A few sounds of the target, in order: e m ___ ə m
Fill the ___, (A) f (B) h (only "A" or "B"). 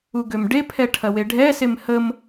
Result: B